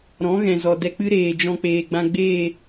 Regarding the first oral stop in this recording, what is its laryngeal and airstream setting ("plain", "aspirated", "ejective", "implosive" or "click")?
plain